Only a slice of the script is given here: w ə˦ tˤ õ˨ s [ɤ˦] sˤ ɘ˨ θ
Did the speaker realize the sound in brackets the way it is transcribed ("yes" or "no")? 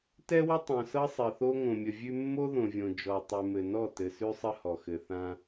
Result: yes